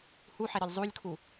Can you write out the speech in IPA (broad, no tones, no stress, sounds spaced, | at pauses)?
h u ħ ɛ ɾ ɒ lʲ zˤ u lʲ kʰ u